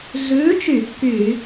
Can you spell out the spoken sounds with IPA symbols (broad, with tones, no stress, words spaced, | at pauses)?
ɮʉː˨˥t͡ʃy˧˩˧ kːy˧˩˧